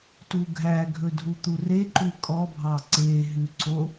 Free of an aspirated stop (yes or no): yes